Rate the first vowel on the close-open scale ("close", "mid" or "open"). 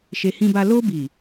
mid